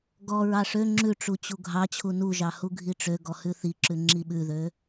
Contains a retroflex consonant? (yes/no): yes